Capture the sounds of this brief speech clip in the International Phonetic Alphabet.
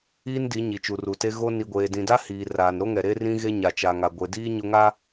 iː˦ n d i˨˦ ɲ i˨ t͡ʃ u˨ r u˨ t e˦ ɣ o˦ n i˨ ɡʷ eː˨ d ĩ˨ d a˦ h iː˨ r aː˨ n ɾ o˦ ŋ ɛ˨ ɾ e˦ r ĩ˦ ɣ e˦ ɲ a˨ t͡ʃ a˨ ŋ a˨ ɡʷ e˨ d iː˦ ɲ ʊ˦ ŋ a˦

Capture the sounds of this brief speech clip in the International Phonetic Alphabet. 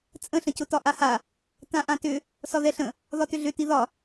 t͡sʼ ə̃ ɬ ə̃ c ʊ t ɒ ʔ a h a | t ã ʔ ã t ʏ | s ɒ ð ɛ ɬ ə̃ | ð ɒ t ʏ ɮ ʏ t i ð ɒ

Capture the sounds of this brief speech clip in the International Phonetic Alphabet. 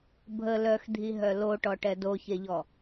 bʱ ə l œ x dʱ i ɦ œ l o ʈ ɔ ʈ ɛ d o ç e ʎ ɔ

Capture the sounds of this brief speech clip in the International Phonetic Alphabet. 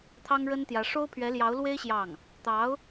t̪ʰ ɑ˥ ŋ ɻ ə˥ n t̪ j ä˧˥ ʂ o˥ ʊ̯ pʰ ɥ ɛ˧˥ l j ɑ˧˥ ʊ̯ l w e˥ ɪ̯ ɕ j ɑ˥˩ ŋ | t̪ ɑ˧˥ ʊ̯

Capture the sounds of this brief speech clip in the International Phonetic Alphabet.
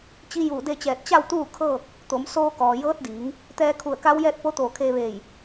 t͡ɕ i˧˥ j uː˧˩ d e˥˨ t͡ɕ ɛː˧˩ t̚ t͡ɕ a˥˨ w t̪ uː˥˨ kʰ ɤː˥˨ k̚ | t̪ o˩˧ m s oː˧ k ɔː˩ j ɤː˧˥ t̚ d iː˩˧ ŋ | t̪ ɛː˧ kʰ u˧˩ ə̯ k a˧˥ w j ɛː˥˨ t̚ p o˧˥ t̪ oː˧˩ kʰ eː˧ ʋ eː˧˩ j

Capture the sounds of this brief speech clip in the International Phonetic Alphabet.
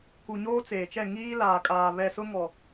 k u˨ ɲ oː˦ t͡s eː˨ t͡ʃ ɛ˦˨ ŋ iː˦ l aː˨ kʼ aː˨ β ɛ˨ s ʊ˦ ŋ ɔ˨

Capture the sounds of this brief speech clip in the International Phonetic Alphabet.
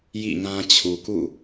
j ḭ˦˨ ŋ ã˦ t͡ɕʰ u˨ k ṵ˦˨

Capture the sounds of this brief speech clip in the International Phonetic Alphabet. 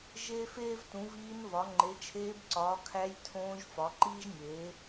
ʒ eː˥ f eː˥ v t ũ˩˥ v iː˧˥ n v ɒ˩˥ ŋ͡ǃ e˩˥ t͡ʃʰ eː˧˥ b ǀ ɒː˩˥ kʰ æ˧˥ j tʰ õː˧˥ ʒ f ɒ˩˥ ǃ iː˥ ʒ nʲ eː˩˥

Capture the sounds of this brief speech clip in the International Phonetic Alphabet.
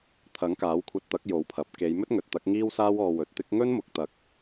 t̪ʰ ɐ˨˥ ŋ k aː˨˥ w kʷʰ ɐ˧ t̚ t̪ ɐ˨˥ k̚ j o˨˥ w pʰ ɐ˨ p̚ k e˨˧ j m ɵ˥ t̚ ŋ ɵ˨ t̚ t̪ ɐ˨˥ k̚ ŋ iː˥ w s aː˥ w ɔː˧ w ɵ˨ t̚ t̪ ɪ˥ k̚ ŋ ɵ˥ n m ʊ˨ k̚ t̪ ɐ˨˥ k̚

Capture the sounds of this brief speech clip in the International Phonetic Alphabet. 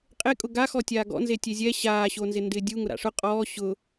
qʼ e kʼ ʊ ɡ a x ɔ tʲ aː ɡ ɔ̰ n z e tʲ e zʲ ɛ ɕ aː ɕ o n z ɪ n d ɪː dʲ u ŋ ʊ ɾ a̰ ʂ ʊ qʼ ɔː ɕ ʊ

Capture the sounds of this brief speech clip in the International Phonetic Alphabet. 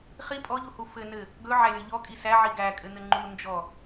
χ i pʼ ɔ ʎ u h u f ɘ n ɘ | ɡ ɵ ʕ æ lʲ ɔ ʎ ɔ kʼ i s æ ʕ i ɡ æ kʼ ɘ n̪ ɘ ŋ͡ǃ u n d͡ʒ ɔ

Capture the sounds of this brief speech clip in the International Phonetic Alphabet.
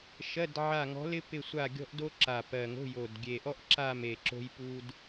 ʃ ɜ˧˥˧ d ʕ a˦˨ ŋ ɔ̤˧˥ l ɪ˥ p ɪ˦˨ sʷ a˦˨ ɡʲ ɔ̤˥ ʔ d o˥ ǁ a˨˩ p ɜ˨˩ ŋ o̤˧˥˧ j o˨˩ d ɡʲ e˨˩ ʔ ɔ˥ ʔ ǁ a˦˨ m e˨˩ ǁ o̤˥ j p u˥ d

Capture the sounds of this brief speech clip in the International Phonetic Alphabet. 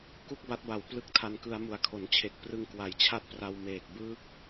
k u˥˩ k̚ b a˦˥ t̚ b a˨˩ w p l ɯ˦˥ k̚ tʰ a˧ n k ɯ˧ a̯ m u˨˩ a̯ kʰ o˩˦ n t͡ɕʰ e˨˩ k̚ p r ɯ˧ ŋ k w a˨˩ j t͡ɕʰ a˥˩ t̚ p r a˧ w m eː˨˩ k̚ b ɯː˥˩ k̚

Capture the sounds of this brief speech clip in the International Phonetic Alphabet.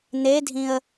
n̪ e dʱ ĩ ə̯

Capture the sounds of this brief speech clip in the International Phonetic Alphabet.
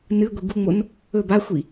n ɨ ɡʷ i ɡ u ŋ͡m o n | ɵ b a xʷ i

